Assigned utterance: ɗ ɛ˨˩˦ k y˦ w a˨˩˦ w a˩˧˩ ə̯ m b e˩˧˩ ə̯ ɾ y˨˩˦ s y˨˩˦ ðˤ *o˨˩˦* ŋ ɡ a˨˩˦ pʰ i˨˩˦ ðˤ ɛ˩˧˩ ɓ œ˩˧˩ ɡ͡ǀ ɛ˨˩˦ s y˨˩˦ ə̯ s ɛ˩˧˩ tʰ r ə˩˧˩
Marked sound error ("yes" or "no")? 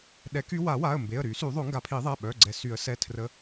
no